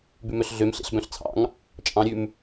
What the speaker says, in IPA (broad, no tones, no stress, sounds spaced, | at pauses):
b ʉ m œ ɬ ɮ ø m ɬ ḛ ɬ b œ̃ ɬ t͡sʰ ɑ̰ ŋ | t͡ʃʼ ɑ̃ ɾʲ ʉ m